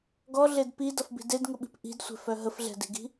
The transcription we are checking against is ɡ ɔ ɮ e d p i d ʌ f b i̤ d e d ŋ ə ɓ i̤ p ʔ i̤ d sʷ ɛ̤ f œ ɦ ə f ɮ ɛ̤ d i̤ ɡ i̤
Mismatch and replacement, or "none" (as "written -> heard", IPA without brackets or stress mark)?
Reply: none